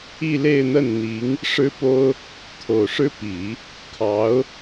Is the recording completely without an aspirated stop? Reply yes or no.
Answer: no